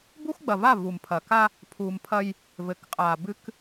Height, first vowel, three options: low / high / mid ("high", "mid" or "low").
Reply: high